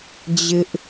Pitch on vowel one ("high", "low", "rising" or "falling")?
high